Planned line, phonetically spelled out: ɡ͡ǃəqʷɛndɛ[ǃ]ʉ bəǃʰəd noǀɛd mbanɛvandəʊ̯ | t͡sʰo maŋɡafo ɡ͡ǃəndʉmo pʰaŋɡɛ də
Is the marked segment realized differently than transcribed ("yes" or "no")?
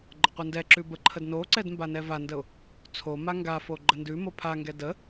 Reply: yes